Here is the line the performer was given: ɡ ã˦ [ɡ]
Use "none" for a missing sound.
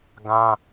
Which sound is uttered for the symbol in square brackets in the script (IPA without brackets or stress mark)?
none